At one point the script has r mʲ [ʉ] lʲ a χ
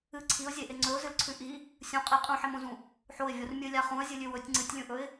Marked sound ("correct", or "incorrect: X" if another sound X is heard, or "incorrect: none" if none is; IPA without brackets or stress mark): incorrect: ɨ